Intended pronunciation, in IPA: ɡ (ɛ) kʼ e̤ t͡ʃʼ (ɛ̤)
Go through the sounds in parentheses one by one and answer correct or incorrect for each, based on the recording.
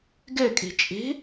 correct, incorrect: e̤

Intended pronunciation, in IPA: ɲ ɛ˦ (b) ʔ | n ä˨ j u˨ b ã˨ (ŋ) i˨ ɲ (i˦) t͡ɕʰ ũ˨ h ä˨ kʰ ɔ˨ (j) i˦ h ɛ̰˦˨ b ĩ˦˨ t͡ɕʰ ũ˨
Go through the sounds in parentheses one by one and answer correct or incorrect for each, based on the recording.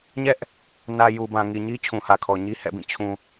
incorrect: none, correct, correct, incorrect: ɲ

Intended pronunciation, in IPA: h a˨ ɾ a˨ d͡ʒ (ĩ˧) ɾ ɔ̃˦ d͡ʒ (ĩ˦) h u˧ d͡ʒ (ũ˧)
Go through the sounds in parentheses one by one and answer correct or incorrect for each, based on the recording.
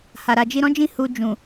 incorrect: i˧, incorrect: ĩ˦˨, incorrect: ũ˨

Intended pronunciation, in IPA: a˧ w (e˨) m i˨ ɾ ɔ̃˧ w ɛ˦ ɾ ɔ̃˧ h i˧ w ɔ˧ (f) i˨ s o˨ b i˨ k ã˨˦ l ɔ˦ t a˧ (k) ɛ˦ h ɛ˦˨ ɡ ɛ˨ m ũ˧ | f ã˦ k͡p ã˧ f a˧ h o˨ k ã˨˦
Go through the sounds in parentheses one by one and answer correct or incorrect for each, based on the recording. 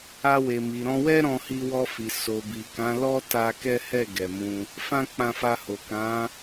correct, correct, correct

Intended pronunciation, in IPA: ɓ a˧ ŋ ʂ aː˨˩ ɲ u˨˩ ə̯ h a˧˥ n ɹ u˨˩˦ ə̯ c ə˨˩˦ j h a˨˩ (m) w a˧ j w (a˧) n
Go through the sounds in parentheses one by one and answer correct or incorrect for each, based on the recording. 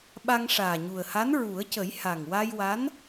incorrect: ŋ, incorrect: a˧˥

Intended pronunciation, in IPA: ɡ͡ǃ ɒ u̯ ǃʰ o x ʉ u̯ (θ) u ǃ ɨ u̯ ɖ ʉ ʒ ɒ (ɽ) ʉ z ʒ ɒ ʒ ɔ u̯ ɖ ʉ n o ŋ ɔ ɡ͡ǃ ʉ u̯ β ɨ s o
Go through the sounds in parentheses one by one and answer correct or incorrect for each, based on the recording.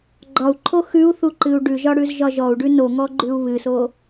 correct, correct

